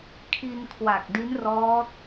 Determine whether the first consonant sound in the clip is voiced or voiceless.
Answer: voiceless